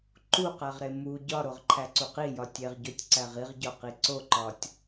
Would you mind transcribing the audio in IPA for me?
ǃ u q æ ʁ ɾ e m u ɟ ɒ ɾ o ʁ ǃʰ æ ǀ u q i j ɒ tʲ e ʁ ɟ o tʲ ǀ æ ʁ i ʁ ɟ ɒ q i ǀ o ǃ ɒ tʲ

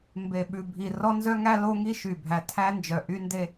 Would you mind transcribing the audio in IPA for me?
m b e˨ ɓ ʉ˨ bʱ i˨ r ɔ˦ n z œ˦ ŋ æ˦ l o˦ ŋ i˦ ʃ y˨ bʱ æ˨ tʰ æ˦ n d͡ʒ œ˨ ʔ y˦ n d e˦

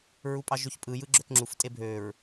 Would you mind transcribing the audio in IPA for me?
ɹ u pʼ ɑ ʒ ø ç pʼ ɯ j ɯ ɡ͡ǁ ø k ŋ͡ǁ u f tʼ e bʱ ø ɹ

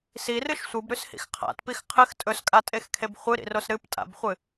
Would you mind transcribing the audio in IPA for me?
s i r ɨ ʃ sʷ ɨ b ɾ ʉ s h ḭ x qʰ a̰ t p i x qʰ ɨ x tʼ ɵ s kʼ a tʼ e x kʰ e b χʷ ɨ ɾ ḭ r o s ɾ ɨ p tʼ a̰ b χʷ ɨ

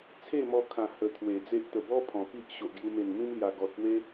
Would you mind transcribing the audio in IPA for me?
t͡sʰ e˥˧ m ɔ˧ kʰ ã˨˩ h ə˧ t̪ʰ w e˨˩ d͡z e˦ ʔ t̪ ə˨˩ b ɔ˦ pʰ ɔ̃˨˩ p i˦ ʔ ɕ o˨ ʔ ɡ j u˧ m e˨˩ n m ĩ˦ m l j a˨˩ ɡ ɔ˨ t̚ p w e˦

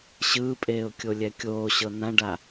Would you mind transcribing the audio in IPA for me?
ɕ ɯː pʼ eː ʊ̯ kʲ o lʲ ɛ kʲ oː ɕ ɤ n ã ɖ a

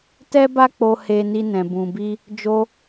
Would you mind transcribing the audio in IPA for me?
t ɛ˦ b a˦ k͡p o˧ h e˧ n i˧ n ɛ̃˨ b ũ˨ b i˧ | d͡ʒ o˧

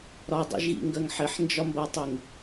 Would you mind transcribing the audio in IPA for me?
ɾ ɒ dˤ ḭ ʒ ɣ ḭ ŋ ɡ ɜ ŋ ħ ɪ ħ n d͡ʒ ɒ m b ɜ tˤ i ŋ

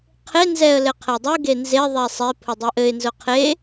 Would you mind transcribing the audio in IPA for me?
qʰ e n z ɛ ə̯ l ɘ qʰ ɛ dˤ u ɡ e n z e ðˤ ɛ sˤ e pʰ ʊ dˤ ʊ ʔ ɘ ɪ̯ n z ʊ qʰ e

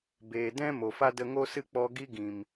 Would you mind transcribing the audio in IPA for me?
b eː˨ d ɛ̃˦ m o˨ f a˦ d ə˧ ŋ o˦ s ɨ˦ k͡p ɔ˧ ɡ i˦ ɡ ĩ˨ m

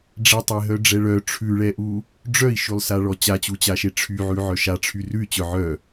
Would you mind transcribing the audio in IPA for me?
ɖ͡ʐ ɛ tˤ e ɦ œ ɖ͡ʐ ɛ ɭ œ ʈ͡ʂʰ ʉ ɭ ɛ ʔ u | ɖ͡ʐ œ i̯ ʃ ʉ lˠ s a ɭ ɔ t͡ɕ a t͡ɕ u t͡ɕ a ʃ e ʈ͡ʂʰ y ʕ ʉ ʕ œ ʃ a ʈ͡ʂʰ y r ʉ y̯ t͡ɕ œ ʕ œ

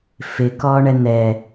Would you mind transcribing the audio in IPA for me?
f ɪ k ɔ ɳ ɛ n̪ ɛ

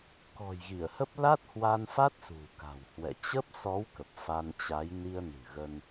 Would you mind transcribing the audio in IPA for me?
k ɔ̤˨˩ j ɣ i˧˩ ə̯ h ə˦˥ p̚ l a˦˥ t̚ h w a˧ n f a˦˥ t̚ s ṳ˨˩ k a̤˨˩ w h w ɛ̰˧˨ t͡ɕ ə˦˥ p̚ s ɔ˨˦ w k ə˨˩ p̚ f a˧ n t͡ɕ a˨˦ j n i˧ ə̯ n ɨ̤˨˩ ɣ ə˧ n

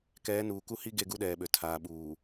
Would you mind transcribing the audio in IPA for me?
k ɛː˨˦ n uː˨ k u˦ h i˦ ɡ e˦˨ ɡ u˦ ɗ ɛː˨ ɓ ø˨ tʰ aː˨ ɓ uː˨

